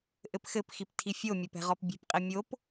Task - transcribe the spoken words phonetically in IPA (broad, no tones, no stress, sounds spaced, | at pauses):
ʔ ɘ p x ɘ p x i p tʰ i fʲ o mʲ ɐ p ɛ̤ ʁ ɔ p bʲ ɛ̤ p qʼ i mʲ o p